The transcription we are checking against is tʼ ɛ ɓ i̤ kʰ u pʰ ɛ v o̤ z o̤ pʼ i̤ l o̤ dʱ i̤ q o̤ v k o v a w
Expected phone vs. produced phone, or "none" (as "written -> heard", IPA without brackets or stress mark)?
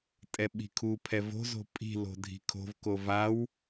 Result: q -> kʰ